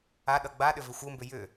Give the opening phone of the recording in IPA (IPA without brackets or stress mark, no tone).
a